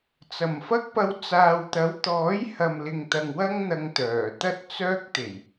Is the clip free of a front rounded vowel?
no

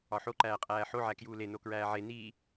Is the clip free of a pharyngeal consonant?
no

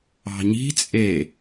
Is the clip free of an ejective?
no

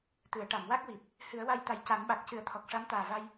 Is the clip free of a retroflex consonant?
no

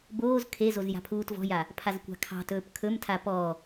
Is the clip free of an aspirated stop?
no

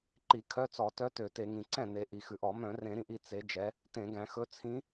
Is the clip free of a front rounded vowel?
no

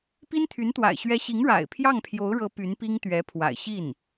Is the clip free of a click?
yes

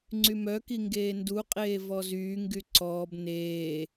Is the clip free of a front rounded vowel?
no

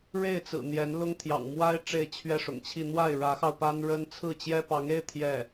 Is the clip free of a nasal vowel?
yes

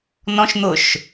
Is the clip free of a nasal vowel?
no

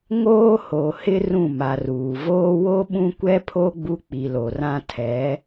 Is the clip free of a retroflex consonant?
yes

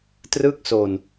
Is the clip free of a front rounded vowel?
yes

